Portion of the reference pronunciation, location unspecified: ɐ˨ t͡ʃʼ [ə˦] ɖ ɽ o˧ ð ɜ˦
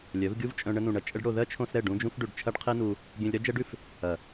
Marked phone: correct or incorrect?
correct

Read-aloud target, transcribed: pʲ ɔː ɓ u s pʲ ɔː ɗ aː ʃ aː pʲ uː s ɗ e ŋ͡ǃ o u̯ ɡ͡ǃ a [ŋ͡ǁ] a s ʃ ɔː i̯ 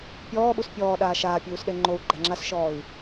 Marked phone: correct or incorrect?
correct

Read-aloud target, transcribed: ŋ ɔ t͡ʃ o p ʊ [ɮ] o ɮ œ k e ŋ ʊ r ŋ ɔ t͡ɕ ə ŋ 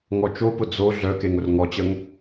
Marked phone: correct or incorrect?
incorrect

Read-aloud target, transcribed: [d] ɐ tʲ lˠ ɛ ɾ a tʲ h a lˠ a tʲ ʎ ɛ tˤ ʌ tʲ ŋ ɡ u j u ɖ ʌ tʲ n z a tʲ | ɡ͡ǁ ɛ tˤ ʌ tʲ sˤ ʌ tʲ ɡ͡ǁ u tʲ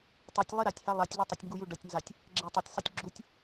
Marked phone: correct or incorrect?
incorrect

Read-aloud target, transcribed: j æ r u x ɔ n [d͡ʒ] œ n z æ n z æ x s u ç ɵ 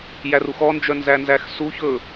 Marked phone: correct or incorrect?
correct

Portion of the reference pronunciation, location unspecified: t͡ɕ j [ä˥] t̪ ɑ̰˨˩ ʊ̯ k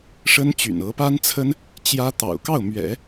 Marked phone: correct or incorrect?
correct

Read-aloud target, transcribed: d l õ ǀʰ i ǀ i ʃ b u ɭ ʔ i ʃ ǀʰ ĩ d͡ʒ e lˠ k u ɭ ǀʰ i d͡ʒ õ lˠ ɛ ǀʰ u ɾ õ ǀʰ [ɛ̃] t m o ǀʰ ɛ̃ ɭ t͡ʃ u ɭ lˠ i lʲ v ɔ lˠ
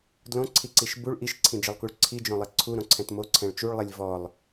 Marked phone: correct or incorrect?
correct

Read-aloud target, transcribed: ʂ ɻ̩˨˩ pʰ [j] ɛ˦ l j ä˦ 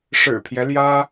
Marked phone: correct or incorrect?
correct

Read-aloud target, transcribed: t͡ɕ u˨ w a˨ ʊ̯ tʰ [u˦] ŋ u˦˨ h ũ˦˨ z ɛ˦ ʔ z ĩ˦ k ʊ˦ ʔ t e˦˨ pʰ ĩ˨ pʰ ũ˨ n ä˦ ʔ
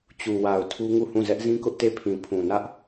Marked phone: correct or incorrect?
correct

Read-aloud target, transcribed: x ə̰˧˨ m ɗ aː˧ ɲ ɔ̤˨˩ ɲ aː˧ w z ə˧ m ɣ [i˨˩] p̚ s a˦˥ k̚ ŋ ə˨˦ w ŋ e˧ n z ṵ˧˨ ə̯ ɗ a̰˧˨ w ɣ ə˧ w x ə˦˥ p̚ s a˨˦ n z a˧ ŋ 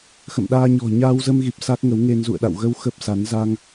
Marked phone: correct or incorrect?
correct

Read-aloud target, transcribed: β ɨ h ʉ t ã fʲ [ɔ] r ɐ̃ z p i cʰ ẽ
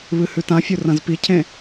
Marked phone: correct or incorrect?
incorrect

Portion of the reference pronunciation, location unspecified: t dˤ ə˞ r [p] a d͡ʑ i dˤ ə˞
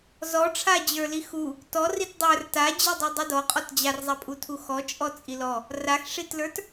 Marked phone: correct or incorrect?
incorrect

